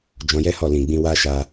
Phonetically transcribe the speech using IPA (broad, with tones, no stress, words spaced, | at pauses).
d͡ʒɔ̃˧jɛ˦hɔ˦˨ lĩ˨ɡ͡bĩ˧wa˦ʃa˧